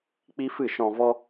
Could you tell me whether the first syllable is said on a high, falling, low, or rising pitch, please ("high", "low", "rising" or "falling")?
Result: high